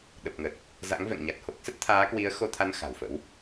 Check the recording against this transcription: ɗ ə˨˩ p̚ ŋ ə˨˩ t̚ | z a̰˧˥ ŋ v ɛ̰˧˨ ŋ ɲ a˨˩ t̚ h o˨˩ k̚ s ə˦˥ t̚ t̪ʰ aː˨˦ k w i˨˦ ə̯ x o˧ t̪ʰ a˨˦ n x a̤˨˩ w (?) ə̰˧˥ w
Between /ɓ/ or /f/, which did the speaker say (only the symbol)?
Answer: f